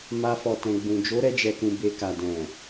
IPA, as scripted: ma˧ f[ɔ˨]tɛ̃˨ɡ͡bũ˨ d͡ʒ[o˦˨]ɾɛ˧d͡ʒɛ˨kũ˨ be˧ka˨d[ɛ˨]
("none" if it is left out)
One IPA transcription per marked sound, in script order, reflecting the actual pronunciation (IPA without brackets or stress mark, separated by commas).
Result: ɔ˨, o˨˦, ɛ̃˨